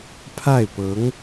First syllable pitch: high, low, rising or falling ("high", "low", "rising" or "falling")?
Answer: falling